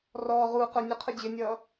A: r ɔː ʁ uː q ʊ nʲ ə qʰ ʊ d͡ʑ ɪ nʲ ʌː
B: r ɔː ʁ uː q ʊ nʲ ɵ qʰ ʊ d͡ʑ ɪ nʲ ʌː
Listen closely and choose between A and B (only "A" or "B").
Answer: A